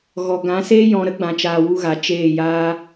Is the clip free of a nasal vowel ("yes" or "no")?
no